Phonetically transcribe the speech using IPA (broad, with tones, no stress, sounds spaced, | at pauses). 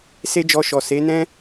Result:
s e˦ d͡ʒ ɔ˧ ʃ ɔ˨ s e˨˦ n ɛ̃˦